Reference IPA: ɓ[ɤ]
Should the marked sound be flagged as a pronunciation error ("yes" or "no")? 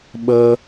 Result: no